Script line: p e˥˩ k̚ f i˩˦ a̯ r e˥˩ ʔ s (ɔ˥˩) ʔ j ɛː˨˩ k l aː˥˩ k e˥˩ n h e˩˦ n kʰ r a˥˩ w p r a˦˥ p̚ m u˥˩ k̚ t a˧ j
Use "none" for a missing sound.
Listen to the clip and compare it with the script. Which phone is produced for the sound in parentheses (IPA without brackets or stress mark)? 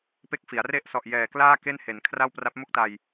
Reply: ɔ˨˩